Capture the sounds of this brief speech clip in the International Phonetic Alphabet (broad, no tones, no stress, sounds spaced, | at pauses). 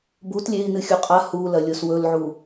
b u t lʲ e i̯ n ɨ xʲ u qʼ a h u l ɐ lʲ o s w ɵ l ʕ u